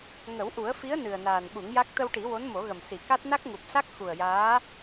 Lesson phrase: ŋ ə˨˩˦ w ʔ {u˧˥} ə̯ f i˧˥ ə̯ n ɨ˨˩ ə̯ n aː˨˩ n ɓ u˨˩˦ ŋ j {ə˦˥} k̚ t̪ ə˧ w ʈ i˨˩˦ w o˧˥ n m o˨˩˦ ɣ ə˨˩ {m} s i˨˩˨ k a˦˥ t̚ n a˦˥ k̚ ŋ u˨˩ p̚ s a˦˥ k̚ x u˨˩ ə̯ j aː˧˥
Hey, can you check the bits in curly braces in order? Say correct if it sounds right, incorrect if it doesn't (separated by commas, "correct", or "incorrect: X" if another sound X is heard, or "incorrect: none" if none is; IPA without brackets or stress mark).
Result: incorrect: u˨˩˦, incorrect: a˦˥, correct